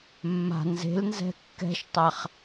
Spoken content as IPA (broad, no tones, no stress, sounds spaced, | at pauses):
mː a̤ n z e̤ l n z ɛ̤ kː ɛ̤ ʃ tˤ a χ